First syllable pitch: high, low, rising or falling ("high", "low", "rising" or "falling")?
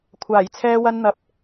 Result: low